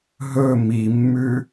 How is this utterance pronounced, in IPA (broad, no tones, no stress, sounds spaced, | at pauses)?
ɦ ɵ m i mː ʉ